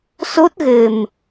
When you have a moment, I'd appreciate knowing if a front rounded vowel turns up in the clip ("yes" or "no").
no